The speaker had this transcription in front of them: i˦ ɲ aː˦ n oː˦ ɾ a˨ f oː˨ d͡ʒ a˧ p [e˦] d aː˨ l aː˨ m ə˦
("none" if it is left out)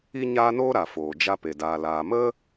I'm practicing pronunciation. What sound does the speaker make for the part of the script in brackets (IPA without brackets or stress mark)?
e˨